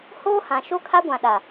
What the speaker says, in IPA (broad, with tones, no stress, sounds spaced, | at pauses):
h oː˦ h ã˨ ʃ o˦ kʰ a˦ ɡʷ ã˨ ɗ a˨